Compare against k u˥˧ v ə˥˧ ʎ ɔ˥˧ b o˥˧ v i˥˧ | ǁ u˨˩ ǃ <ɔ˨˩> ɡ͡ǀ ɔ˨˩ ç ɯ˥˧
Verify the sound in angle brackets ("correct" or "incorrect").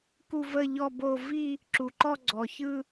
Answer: incorrect